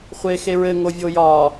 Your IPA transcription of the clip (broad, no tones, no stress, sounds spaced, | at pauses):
χʷ e x e ɹ ɘ ŋ o vʲ o j ɒ